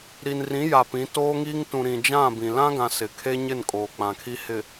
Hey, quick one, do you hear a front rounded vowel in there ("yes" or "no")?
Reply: no